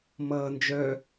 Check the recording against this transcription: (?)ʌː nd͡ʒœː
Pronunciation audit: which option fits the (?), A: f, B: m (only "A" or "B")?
B